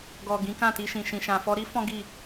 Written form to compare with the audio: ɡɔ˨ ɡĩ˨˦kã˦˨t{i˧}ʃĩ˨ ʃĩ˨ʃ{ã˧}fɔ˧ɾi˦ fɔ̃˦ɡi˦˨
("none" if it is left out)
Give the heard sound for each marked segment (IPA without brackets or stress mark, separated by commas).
i˧, ã˨